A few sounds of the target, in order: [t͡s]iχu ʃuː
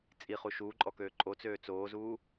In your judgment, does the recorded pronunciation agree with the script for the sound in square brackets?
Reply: no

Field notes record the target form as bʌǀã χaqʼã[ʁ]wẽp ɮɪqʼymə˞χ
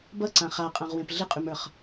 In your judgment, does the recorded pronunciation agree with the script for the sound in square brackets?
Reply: yes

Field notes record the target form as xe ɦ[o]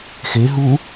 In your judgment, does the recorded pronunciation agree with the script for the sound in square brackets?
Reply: no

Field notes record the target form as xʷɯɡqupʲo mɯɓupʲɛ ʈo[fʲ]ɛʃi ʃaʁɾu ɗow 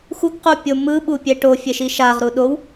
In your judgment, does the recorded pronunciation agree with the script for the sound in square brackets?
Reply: yes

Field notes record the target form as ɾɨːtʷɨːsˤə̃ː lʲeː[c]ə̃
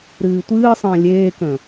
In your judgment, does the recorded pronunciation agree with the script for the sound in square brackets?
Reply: no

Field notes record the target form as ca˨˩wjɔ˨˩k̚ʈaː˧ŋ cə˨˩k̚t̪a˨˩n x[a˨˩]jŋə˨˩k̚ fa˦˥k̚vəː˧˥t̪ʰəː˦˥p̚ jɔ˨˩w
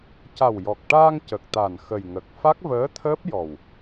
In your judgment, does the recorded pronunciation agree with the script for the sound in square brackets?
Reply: no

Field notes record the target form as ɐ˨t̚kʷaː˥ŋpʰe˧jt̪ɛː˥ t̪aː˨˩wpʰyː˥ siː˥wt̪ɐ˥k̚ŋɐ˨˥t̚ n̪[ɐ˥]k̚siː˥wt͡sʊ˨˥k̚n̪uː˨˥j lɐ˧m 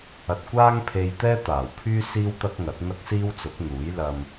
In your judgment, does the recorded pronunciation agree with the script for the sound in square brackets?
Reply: yes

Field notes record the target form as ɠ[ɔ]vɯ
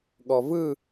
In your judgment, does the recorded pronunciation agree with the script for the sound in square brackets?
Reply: yes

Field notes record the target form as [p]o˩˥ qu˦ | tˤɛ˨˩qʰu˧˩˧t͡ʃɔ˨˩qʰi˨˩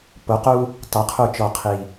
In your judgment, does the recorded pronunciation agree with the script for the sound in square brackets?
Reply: yes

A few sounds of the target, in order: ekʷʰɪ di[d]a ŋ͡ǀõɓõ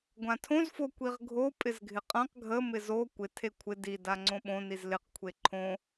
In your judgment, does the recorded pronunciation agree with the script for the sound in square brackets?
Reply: yes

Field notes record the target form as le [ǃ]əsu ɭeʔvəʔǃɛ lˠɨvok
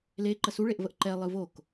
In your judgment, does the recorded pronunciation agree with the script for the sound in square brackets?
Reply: yes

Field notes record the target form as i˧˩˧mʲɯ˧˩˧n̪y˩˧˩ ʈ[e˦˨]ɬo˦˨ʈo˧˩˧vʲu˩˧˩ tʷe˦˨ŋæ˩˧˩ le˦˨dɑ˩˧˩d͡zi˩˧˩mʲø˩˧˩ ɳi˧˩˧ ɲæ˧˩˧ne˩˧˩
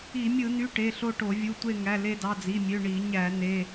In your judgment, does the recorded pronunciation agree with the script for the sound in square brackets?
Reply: no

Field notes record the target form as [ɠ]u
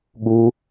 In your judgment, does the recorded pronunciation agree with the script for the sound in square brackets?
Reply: yes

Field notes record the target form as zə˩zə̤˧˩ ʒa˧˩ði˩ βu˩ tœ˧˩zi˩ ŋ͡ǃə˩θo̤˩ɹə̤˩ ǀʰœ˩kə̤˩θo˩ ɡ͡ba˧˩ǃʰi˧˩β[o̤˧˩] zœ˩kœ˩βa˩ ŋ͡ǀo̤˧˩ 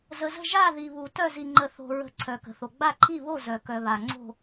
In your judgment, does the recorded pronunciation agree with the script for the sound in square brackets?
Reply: no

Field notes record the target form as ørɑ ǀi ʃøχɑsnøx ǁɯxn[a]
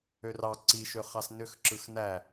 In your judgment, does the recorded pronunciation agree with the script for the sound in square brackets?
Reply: no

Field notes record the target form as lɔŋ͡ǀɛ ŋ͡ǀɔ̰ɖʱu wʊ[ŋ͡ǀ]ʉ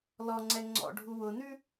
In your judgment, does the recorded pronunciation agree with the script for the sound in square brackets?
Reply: no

